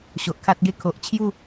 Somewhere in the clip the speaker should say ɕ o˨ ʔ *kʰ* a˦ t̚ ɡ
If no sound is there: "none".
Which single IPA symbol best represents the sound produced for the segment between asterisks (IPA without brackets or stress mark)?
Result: kʰ